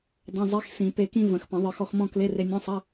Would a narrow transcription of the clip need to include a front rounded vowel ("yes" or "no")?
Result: no